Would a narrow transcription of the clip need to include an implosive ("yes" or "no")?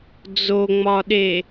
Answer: yes